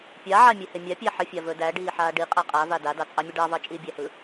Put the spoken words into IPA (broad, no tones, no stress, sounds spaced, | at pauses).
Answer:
pʲ a ʕ a mʲ ɛ h e mʲ a pʲ æ ħ ə fʲ a v ɵ d æ ɖ iː ħ aː ɖ i qʼ æ qʼ a v a d a d ɑ t͡sʼ ɑ mʲ ə ɖ ɑ v ɑ t͡ʃʼ iː bʲ æ h ɯ